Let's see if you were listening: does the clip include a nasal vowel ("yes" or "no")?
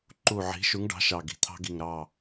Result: no